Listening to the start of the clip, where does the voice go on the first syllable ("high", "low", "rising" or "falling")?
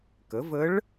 rising